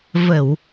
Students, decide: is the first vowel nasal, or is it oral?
oral